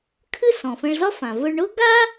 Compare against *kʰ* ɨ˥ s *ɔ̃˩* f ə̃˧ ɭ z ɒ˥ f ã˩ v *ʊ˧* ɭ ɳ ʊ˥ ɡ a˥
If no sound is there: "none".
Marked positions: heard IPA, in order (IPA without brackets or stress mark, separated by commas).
kʰ, ɔ̃˩, ʊ˧